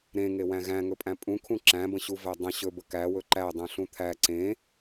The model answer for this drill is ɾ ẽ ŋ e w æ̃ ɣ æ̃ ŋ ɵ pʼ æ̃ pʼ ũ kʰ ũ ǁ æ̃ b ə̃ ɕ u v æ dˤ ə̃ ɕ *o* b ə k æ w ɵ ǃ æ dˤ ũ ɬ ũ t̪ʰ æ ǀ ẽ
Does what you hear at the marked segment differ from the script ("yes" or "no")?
yes